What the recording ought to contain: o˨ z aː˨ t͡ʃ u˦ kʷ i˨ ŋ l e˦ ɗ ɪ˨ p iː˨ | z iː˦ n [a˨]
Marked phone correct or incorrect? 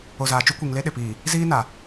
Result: correct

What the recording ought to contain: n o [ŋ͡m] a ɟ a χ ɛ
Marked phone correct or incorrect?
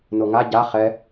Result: incorrect: ŋ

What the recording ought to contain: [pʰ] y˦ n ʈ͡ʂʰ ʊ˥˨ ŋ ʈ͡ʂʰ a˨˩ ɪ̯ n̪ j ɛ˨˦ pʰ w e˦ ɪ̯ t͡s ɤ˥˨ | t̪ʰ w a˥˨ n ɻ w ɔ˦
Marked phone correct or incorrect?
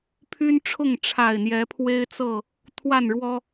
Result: correct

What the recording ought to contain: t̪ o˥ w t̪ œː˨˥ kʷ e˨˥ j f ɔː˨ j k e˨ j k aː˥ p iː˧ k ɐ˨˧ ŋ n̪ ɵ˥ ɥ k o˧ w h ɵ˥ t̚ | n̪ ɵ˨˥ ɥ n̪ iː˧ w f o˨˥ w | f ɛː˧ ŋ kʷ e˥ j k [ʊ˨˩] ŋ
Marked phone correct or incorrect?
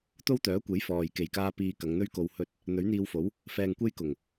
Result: correct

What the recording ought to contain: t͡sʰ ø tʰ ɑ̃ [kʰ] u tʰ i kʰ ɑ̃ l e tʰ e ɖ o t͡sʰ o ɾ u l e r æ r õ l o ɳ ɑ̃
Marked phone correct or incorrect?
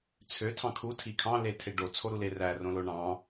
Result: correct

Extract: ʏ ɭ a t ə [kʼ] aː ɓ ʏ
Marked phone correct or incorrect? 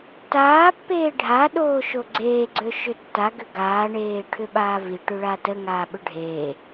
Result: incorrect: ŋ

